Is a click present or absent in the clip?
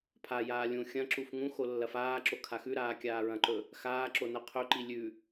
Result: present